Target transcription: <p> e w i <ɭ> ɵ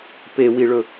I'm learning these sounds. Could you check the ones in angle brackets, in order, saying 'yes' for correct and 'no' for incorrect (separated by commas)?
yes, yes